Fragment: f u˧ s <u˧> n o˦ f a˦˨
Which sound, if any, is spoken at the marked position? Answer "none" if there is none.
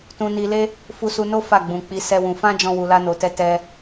u˧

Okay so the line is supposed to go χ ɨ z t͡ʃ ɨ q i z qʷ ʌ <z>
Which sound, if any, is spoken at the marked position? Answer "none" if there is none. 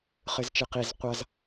z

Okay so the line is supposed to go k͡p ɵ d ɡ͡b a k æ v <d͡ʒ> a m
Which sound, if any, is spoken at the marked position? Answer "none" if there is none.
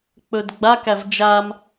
d͡ʒ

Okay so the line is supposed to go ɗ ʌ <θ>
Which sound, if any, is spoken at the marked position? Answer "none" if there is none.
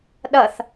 θ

